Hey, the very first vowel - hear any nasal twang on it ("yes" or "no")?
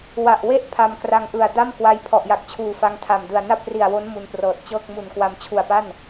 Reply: no